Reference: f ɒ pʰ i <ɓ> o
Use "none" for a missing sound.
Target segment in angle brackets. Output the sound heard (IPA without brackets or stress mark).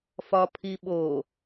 ɓ